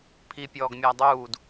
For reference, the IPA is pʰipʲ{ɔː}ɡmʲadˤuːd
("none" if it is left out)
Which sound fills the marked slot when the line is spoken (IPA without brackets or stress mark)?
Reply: ɔː